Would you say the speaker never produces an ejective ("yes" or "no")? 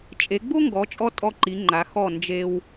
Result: no